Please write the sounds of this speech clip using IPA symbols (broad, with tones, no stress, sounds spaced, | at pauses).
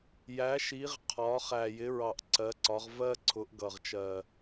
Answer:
j æ˩˥ ʃ i˩˥ ʁ qʰ ɒ˩˥ χ æ˨˩ j ɪ˩˥ ɹ ɑ˨˩ ʔ ǀ ɜ˩˥ ǀ ɒ˩˥ ʁ v ɜ˦ ǀʰ ʊ˩˥ ʔ ɡ ʌ˨˩ ʁ t͡ʃ ɜ˨˩